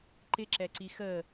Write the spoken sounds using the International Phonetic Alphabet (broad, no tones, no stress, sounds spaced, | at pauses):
ǃ ɪ ǁ ɛ ǀ i x ə